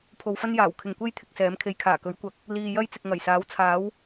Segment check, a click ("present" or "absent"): absent